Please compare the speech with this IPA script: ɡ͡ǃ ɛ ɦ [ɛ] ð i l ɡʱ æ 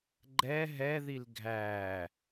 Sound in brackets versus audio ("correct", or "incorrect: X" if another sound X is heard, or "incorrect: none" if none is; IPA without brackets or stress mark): correct